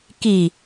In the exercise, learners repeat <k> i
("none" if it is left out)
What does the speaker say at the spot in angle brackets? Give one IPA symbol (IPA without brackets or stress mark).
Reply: k